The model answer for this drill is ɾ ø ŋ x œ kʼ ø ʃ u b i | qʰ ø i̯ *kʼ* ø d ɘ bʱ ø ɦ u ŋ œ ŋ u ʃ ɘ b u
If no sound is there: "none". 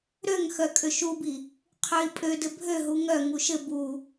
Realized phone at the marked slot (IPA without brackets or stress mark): pʼ